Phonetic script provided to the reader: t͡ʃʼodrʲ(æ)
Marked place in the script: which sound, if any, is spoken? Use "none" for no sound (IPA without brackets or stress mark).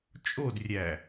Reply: æ